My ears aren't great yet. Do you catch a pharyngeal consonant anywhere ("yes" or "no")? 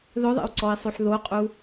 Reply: yes